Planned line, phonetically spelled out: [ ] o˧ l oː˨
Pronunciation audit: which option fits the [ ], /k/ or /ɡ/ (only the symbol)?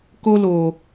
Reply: k